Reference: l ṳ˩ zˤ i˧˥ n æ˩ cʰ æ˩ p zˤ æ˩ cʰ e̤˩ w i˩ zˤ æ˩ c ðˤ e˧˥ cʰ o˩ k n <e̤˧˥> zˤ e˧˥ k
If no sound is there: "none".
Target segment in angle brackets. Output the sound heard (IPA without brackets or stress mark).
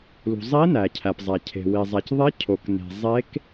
e̤˩